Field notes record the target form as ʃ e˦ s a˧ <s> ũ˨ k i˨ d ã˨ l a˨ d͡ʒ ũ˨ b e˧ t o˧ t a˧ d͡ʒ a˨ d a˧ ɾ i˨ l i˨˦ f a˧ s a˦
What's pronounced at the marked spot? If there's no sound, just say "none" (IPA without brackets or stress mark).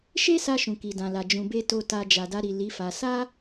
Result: ʃ